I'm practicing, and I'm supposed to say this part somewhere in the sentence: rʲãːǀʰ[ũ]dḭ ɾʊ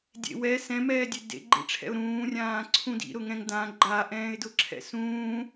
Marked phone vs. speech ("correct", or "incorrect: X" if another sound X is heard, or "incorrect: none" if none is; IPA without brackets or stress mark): correct